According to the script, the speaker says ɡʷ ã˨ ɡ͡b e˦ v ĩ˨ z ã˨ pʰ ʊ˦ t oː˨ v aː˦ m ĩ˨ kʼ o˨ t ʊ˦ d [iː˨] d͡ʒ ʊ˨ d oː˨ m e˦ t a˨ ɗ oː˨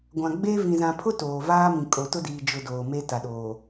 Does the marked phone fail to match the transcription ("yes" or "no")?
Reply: no